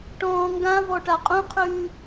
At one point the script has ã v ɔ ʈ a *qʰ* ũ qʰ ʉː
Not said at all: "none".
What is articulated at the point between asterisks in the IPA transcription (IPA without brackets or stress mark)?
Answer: qʼ